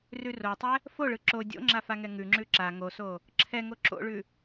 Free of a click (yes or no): no